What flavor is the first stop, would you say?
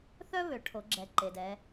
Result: aspirated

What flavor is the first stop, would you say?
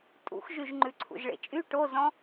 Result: ejective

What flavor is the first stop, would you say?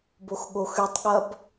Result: plain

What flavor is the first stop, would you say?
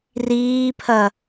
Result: aspirated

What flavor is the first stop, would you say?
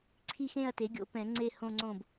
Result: click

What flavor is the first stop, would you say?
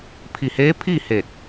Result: aspirated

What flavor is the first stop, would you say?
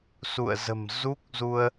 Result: plain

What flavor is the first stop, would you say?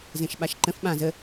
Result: implosive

